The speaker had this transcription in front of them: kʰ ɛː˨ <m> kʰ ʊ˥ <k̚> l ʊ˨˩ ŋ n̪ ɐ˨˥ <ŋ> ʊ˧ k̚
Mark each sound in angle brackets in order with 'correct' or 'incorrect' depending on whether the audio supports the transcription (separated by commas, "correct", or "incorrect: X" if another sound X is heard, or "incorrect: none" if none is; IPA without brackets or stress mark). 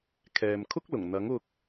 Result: correct, correct, correct